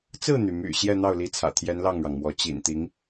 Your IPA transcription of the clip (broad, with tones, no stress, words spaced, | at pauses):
t͡sɹ̩˥˩n̪y˩my̰˨˩ ɕjɛ˥˧n̪ɑ˥˩ʊ̯li˧˥t͡sʰä̰˨˩ t̪ʰjɛ˧˥n lɑ˥˩ŋɻɑ˩ŋmwɔ˧˥ t͡ɕḭ˨˩nt̪i˧˥ŋ